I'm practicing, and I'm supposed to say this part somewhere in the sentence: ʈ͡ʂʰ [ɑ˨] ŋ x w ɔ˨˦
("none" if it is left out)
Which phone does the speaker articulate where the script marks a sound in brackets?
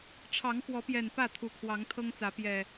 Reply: ɑ˨˦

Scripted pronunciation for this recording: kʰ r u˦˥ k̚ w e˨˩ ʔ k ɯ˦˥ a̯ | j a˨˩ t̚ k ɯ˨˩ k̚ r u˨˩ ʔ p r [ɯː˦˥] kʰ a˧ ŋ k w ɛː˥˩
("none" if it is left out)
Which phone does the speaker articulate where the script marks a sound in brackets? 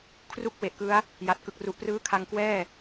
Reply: ɯː˦˥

